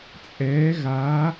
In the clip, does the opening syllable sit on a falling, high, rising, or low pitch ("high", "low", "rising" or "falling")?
rising